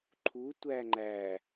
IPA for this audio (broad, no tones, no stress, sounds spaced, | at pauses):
ǃʰ u tʷ æ ŋ͡ǃ æ